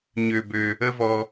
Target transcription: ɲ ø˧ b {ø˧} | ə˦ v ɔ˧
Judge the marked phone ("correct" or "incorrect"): correct